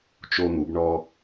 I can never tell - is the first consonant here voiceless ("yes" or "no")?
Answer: yes